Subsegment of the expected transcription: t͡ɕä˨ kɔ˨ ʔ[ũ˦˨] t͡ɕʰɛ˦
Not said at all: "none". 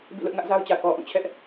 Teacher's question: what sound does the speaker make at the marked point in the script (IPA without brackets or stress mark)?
ũ˦˨